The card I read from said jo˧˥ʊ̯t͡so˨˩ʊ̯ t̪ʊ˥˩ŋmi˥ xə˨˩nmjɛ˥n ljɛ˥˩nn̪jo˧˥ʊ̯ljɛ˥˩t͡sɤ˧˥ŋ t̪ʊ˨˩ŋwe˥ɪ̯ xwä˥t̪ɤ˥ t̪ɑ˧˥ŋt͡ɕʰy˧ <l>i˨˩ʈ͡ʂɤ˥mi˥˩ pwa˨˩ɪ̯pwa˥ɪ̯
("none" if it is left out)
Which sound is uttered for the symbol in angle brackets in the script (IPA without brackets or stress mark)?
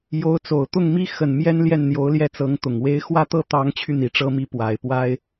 n̪